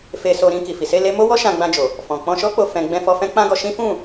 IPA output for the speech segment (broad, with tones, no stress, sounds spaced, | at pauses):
f e˧ s o˧ ɾ ĩ˧ k i˨ f i˨ s e˧ l e˦ m o˦ w ɔ˦ ʃ ã˧ ɡ͡b ã˧ d͡ʒ o˨ | f ɔ̃˨ k͡p ɔ̃˧ ʃ ɔ˦ k͡p o˧ f ɛ̃˨ ɡ͡b ɛ̃˧ f ɔ˧ f ɛ̃˦ k͡p ã˦ ɡ ɔ˧ ʃ ĩ˦ f ũ˦˨